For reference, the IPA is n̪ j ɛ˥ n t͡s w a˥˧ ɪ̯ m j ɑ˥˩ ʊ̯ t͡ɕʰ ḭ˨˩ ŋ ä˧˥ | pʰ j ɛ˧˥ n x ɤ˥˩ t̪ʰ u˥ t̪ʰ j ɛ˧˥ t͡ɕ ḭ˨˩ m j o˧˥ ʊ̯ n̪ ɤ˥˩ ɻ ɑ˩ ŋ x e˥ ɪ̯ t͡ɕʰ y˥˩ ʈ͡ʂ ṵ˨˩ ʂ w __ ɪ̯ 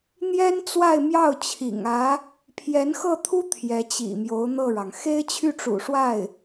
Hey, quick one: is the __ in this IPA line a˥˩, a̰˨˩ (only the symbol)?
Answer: a˥˩